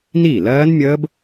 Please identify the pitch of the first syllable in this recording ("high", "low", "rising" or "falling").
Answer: falling